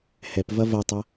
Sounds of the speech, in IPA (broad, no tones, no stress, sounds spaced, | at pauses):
h ɛ p v ɐ v ɐ tˤ ɐ